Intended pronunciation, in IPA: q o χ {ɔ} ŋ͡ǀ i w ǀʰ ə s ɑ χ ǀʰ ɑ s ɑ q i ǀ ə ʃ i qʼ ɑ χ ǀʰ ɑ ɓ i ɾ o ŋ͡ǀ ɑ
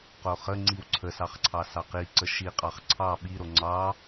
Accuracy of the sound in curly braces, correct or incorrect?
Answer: incorrect: ə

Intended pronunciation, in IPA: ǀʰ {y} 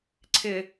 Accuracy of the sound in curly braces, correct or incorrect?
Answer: incorrect: ɪ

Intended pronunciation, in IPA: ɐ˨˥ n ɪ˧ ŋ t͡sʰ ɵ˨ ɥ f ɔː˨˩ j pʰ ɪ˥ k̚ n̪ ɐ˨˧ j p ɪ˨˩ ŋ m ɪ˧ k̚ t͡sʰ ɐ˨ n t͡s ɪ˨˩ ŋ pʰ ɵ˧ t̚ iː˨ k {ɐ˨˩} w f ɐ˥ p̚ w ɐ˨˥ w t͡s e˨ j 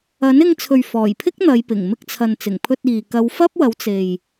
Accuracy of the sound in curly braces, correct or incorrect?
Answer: incorrect: ɐ˨˧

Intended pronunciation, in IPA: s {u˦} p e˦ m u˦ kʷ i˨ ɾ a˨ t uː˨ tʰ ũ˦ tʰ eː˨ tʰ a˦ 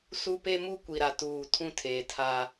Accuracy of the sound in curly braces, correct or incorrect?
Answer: correct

